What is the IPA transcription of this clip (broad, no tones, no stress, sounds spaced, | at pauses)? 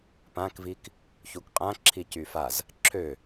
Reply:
p ã k v i k | ç u k qʼ ã ǁʰ i c y f a z | ǁʰ ø